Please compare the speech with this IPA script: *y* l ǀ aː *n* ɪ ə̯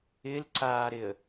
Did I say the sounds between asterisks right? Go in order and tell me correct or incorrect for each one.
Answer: incorrect: ɪ, incorrect: ɾ

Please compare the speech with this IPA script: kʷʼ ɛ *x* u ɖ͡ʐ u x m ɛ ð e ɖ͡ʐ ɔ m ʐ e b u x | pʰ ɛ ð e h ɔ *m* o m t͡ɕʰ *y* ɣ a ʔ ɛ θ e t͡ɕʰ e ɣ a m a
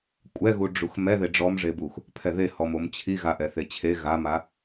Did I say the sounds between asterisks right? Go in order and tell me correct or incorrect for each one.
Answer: incorrect: ɣ, correct, incorrect: i

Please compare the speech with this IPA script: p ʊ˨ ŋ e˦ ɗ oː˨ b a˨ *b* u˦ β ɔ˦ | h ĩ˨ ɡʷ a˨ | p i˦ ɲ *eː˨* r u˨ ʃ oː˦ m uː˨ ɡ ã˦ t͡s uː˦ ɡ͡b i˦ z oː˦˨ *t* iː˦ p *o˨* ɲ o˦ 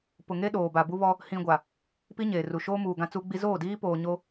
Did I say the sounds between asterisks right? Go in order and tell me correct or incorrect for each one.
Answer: correct, correct, incorrect: d, incorrect: oː˨

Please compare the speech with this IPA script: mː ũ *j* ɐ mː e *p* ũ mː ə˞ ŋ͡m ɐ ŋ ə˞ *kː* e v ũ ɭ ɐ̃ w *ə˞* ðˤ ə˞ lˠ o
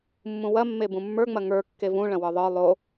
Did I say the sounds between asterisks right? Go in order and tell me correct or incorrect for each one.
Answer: incorrect: w, incorrect: b, correct, correct

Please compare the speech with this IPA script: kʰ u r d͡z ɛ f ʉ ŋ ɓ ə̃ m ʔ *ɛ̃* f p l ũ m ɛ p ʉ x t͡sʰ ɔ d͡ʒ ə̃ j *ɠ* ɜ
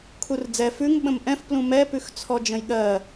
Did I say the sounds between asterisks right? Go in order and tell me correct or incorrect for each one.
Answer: correct, correct

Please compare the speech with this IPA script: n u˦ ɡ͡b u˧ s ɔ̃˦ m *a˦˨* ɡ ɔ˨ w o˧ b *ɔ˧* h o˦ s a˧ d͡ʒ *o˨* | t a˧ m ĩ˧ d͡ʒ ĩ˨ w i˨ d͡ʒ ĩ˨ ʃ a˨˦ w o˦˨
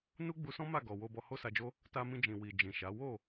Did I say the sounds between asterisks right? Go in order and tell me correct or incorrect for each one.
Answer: correct, correct, incorrect: o˦

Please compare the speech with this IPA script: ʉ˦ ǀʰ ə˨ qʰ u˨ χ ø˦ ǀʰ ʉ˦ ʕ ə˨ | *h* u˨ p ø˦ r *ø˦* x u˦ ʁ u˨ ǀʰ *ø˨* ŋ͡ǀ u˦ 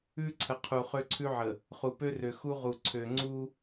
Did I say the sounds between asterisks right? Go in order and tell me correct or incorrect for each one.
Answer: incorrect: χ, incorrect: ø˨, correct

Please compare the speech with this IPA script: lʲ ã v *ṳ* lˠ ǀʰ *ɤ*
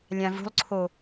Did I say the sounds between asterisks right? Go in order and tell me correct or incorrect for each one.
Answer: correct, incorrect: o

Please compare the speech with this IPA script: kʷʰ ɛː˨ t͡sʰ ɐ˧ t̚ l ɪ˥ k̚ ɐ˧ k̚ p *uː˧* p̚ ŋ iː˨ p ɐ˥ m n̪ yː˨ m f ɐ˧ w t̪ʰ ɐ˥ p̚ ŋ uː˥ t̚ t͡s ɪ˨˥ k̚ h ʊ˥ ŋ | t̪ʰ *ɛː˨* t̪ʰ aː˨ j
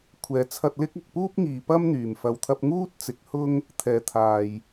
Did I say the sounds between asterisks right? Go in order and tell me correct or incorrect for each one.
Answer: incorrect: uː˥, correct

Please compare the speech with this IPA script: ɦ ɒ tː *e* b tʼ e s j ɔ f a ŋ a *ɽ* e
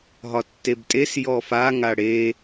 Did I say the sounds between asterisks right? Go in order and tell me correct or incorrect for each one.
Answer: correct, correct

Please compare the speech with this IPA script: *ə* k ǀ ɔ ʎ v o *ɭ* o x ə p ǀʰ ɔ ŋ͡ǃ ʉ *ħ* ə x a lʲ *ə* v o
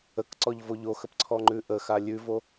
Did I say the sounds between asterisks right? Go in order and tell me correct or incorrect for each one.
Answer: correct, incorrect: ʎ, incorrect: ʔ, incorrect: ʉ

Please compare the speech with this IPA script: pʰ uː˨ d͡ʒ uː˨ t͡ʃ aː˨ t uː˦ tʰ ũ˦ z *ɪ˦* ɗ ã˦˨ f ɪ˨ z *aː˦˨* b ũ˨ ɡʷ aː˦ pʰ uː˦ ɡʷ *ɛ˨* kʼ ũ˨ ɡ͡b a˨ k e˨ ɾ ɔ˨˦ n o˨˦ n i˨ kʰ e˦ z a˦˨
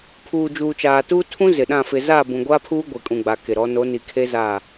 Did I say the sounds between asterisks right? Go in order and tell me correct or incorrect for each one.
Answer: incorrect: ɪ˨, correct, incorrect: e˨

